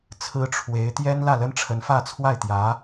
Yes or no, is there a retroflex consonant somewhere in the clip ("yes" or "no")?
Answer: yes